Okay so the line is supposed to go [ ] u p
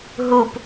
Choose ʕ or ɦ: ɦ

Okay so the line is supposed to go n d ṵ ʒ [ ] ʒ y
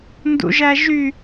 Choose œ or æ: æ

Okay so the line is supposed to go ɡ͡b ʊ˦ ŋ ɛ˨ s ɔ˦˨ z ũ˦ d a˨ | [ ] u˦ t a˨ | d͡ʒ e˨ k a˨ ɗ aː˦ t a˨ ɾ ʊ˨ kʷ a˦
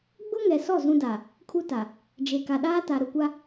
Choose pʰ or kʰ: kʰ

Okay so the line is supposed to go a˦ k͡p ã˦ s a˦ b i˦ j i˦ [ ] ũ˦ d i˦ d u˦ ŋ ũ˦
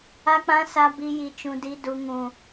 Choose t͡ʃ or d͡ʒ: t͡ʃ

